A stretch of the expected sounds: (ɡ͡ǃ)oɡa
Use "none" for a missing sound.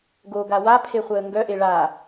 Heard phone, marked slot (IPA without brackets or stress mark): ɡ